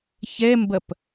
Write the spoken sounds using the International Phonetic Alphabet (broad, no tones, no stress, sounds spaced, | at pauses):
ç ɛ m b ɐ p